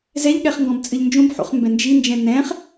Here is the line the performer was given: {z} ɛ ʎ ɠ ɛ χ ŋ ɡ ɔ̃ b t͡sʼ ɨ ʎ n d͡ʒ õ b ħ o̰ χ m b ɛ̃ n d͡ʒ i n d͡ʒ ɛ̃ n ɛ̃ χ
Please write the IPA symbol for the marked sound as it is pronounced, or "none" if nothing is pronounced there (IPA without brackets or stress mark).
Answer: z